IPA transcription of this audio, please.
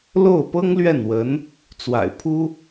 l o˥˩ ʊ̯ p ɤ˥ ŋ l ɥ ɛ˥˩ n w ə˧˥ n | t͡s w a̰˨˩ ɪ̯ pʰ u˥

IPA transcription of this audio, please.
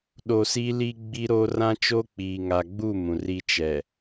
ɗ o˨ s i˦ l i˦ ɡ͡b i˦ ɾ o˦ r ã˦ t͡ʃ o˦ k͡p iː˨ ŋ a˨ ɡ͡b u˦˨ m ũ˨ r i˦ t͡ʃ ɛ˨

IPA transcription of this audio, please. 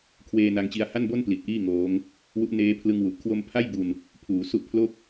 kʰ w eː˧ n a˧ ŋ t͡ɕ i˧ a̯ h a˥˩ n b o˥˩ n p l i˨˩ t̚ ʔ iː˥˩ ŋ oː˦˥ ŋ | w u˦˥ ʔ n eː˦˥ pʰ l ɯ˧ ŋ w u˨˩ ʔ kʰ w o˧ m pʰ a˥˩ j b u˧ n | pʰ uː˩˦ s u˦˥ ʔ pʰ l o˥˩ k̚

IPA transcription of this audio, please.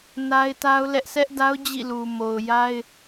n a˦ ɪ̯ t a˦ ʊ̯ l ɛ˦ ʔ s ɛ˦ ʔ d a˦ ʊ̯ d͡ʑ ḭ˦˨ l u˨ m o˨ ʊ̯ j a˦ ɪ̯

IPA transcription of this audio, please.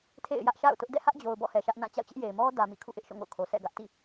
tʰ ḛ˦˨ ɪ̯ j ä˦ ʔ ʃ a̰˦˨ ʊ̯ t ʊ˦ ʔ d ɛ̰˦˨ h ä˦ ʔ d͡ʑ o˨ ʊ̯ b ɔ̰˦˨ h ɛ˨ ʃ ä˦ ʔ n ã˦˨ t͡ɕ a̰˦˨ ʊ̯ t͡ɕ ɪ˦ ʔ j e˨ ɪ̯ m ɔ˦ d ä˨ m ḭ˦˨ kʰ ṵ˦˨ ʔ ɪ˦ ʔ ʃ o̰˦˨ ŋ o̰˦˨ ʊ̯ kʰ o˨ s ɛ̰˦˨ ɡ ä˦ ʔ t ḭ˦˨

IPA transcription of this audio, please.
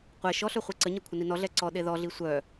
qʷ ɛ ʃ ɔ ɬ œ χʷ e ǀ ə ɲ e kʷʰ ə n i n ɔ ɮ ɛ ǀ ɔ ɗ e ð ɔ ɮ i sʷ œ

